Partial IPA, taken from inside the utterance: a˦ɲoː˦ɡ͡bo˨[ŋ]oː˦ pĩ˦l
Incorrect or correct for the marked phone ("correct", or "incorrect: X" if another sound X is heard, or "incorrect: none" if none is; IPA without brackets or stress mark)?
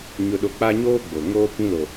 correct